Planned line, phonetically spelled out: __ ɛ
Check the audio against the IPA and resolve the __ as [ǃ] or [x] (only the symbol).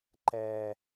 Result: ǃ